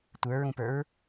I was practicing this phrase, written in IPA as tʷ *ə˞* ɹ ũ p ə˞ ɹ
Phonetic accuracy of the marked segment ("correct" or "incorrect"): correct